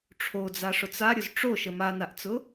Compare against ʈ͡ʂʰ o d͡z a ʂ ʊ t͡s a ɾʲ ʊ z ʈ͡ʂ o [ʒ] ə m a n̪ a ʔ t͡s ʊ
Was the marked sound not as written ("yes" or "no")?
yes